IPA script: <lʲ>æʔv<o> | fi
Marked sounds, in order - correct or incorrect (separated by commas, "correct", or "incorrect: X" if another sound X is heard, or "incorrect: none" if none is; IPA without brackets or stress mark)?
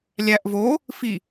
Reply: correct, correct